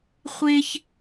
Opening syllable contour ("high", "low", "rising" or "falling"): high